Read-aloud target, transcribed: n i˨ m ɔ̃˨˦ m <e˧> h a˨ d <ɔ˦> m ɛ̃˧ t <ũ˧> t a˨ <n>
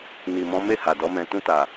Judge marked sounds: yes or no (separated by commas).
no, no, yes, no